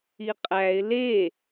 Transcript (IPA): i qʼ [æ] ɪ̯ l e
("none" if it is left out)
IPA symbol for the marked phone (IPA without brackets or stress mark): æ